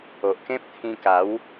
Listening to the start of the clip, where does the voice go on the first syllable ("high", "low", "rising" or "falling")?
low